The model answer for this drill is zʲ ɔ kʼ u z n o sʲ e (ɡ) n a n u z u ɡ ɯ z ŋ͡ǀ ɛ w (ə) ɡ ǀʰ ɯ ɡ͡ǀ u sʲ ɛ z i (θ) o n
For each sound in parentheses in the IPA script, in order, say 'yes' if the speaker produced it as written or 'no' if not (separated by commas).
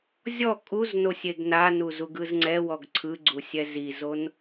yes, no, no